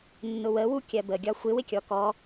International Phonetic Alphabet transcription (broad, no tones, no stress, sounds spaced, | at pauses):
nː ʊ w ə w u kʲ ɜ b ə ɡʲ ɒ xʷ ɪ w ɪ kʲ ɔ k ɔ